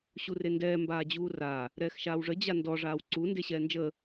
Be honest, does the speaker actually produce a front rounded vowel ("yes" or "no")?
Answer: no